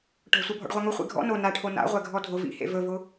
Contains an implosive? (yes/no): no